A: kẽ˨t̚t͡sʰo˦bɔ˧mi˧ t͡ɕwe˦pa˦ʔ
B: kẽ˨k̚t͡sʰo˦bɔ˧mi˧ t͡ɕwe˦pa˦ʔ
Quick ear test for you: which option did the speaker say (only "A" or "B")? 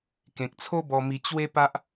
B